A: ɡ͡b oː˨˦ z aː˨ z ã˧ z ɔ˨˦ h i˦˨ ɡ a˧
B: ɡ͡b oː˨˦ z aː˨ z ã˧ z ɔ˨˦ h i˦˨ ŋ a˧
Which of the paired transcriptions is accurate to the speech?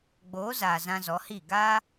A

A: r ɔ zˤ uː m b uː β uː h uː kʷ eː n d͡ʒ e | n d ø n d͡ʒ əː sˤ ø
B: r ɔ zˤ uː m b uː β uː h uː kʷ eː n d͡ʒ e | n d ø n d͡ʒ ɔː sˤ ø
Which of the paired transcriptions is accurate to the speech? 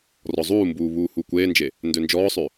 B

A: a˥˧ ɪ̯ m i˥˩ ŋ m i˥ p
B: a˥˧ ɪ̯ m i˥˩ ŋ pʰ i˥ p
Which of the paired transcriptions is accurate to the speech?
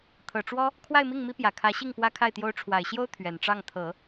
A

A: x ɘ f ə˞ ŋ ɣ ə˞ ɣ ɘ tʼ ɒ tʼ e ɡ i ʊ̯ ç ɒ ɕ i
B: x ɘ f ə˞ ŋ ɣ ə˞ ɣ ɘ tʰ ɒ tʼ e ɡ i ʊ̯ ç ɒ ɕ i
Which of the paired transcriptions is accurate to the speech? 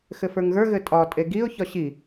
A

